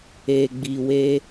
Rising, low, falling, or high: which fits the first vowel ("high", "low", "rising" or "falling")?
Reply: low